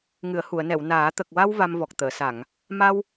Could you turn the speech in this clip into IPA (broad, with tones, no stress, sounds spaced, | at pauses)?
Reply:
ŋ ɨ˨˩˨ ə̯ h u˨˩˨ ə̯ n ɛ˨˩˨ w n aː˨˩˦ t̪ ə˨˩ k̚ w a˧ w v a˧ m v ɔ˨˩ k̚ t̪ əː˨˩˨ s a˨˩˨ ŋ | m a˧ w